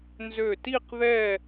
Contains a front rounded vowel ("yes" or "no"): yes